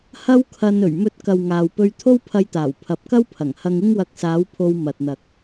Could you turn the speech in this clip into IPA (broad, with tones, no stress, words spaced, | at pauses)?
hɐ˥wkʰɐ˧n ɵ˨˩ɥmɵ˨˥t̚kɐ˨w ŋaː˨w pɵ˧ɥt̪ʰo˥wpʰɐ˧jt̪aː˨˩w pʰɐ˨p̚kɐ˥wpʰɐ˨˩ŋhɐ˧ŋ ɪ˥ŋwɐ˧k̚saː˨˥wpʰo˧w mɐ˨t̚n̪ɐ˨k̚